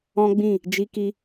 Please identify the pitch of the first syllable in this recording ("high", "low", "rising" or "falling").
high